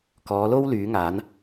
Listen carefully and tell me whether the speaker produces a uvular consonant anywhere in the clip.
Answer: no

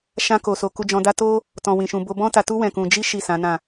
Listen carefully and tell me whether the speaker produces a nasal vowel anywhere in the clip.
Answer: yes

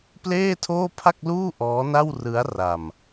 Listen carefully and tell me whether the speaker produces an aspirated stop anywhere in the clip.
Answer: yes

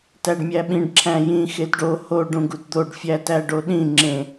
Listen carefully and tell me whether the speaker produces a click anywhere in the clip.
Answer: yes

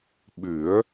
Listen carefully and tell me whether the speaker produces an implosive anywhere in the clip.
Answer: yes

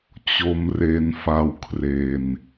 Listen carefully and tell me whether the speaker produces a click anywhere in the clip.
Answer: no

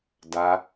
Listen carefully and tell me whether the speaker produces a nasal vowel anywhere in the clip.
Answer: no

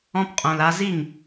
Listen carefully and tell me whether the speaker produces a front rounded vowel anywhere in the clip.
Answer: no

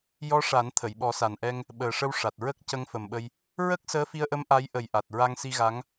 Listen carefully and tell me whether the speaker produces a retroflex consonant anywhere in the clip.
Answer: yes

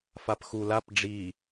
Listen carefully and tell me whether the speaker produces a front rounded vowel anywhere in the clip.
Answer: no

